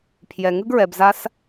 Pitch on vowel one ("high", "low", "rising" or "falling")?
low